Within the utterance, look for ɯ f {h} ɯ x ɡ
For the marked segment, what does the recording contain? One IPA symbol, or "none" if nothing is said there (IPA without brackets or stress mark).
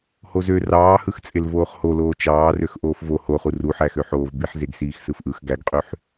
ʔ